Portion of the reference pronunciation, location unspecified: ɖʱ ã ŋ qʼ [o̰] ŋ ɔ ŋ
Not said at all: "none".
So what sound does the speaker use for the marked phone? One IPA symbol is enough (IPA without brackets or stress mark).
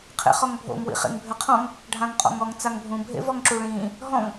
ɔ̰